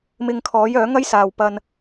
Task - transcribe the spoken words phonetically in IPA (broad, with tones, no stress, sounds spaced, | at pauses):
m ɪ˧ ŋ kʰ ɔː˨˥ j œː˨˥ ŋ ɐ˥ j s aː˨ w p ɐ˧ n